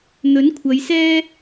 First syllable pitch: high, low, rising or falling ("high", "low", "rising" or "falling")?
rising